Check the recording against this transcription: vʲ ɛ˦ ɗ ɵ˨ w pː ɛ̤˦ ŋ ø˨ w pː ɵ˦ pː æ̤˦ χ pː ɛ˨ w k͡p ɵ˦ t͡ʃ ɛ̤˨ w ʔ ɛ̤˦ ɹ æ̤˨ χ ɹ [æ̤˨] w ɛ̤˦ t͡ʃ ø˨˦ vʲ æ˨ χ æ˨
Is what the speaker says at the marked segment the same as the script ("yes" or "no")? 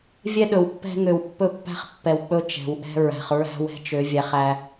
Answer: no